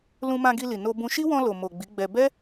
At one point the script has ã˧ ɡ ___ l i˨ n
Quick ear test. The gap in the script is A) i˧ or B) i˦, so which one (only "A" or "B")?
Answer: A